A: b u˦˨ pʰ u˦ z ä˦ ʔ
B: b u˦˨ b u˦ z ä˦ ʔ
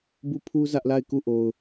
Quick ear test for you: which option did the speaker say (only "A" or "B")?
A